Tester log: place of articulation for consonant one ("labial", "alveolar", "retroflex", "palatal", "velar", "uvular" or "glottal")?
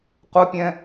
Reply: uvular